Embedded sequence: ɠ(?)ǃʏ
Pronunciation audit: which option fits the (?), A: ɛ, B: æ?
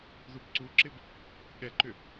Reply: A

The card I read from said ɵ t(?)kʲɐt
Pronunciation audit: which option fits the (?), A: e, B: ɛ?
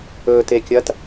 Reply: A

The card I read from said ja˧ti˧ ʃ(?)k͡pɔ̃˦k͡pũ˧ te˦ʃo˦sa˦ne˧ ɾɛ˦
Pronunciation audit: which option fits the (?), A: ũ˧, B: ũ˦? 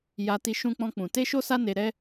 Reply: B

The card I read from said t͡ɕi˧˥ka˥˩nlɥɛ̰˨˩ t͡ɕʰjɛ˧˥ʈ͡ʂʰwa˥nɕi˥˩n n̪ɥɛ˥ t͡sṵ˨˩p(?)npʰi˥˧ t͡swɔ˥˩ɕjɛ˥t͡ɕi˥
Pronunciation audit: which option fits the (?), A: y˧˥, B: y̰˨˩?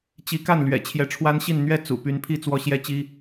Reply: A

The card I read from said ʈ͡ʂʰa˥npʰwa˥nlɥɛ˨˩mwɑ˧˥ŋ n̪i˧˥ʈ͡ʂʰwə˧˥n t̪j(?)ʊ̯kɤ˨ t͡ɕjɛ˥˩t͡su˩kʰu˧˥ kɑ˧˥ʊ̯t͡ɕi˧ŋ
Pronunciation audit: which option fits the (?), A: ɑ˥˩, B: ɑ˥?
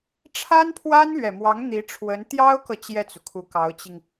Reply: B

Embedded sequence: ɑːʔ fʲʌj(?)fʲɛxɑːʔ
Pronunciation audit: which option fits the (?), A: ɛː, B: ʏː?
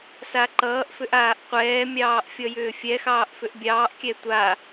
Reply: B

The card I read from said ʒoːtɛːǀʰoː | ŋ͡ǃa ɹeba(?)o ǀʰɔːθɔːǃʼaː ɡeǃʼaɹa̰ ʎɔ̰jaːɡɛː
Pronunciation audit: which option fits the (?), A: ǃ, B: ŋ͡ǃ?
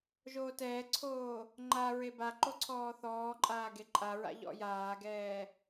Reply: A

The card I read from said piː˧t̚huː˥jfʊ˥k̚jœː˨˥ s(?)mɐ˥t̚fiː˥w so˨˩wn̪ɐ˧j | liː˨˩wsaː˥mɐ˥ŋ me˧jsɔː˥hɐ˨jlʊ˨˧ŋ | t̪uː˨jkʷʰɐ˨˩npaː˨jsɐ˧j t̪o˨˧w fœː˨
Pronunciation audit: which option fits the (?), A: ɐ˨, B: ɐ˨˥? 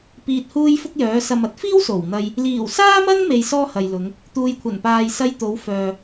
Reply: A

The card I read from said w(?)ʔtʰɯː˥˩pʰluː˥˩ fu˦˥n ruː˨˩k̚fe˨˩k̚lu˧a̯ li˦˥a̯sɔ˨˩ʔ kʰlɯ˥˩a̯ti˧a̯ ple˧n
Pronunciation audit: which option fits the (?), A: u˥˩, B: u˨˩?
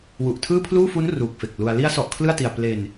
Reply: B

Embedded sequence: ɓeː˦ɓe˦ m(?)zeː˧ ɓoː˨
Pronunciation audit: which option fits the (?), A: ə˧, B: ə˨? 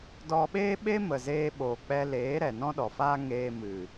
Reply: B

